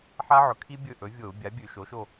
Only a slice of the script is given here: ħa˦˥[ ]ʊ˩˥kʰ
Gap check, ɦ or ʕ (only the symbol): ʕ